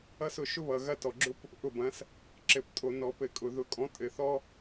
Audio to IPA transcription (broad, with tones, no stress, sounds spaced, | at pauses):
ʌ˦ s ʊ˦˨ ʃ ʊ˦ β ʌ˨ ɣ ɐ˦˨ t ɔ˨ ɡ͡ǁ ʊ˦ p | ʔ ʊ˦˨ b ɐ̃˨˥ s | ǁ ɘ˨ p tʼ o˨ n ɔ˨˩˦ p ɘ˨˩˦ kʼ ʊ˨ ð ʊ˨˥ kʼ ɔ̃˨˥ tʼ ɘ˨ θ ɔ˦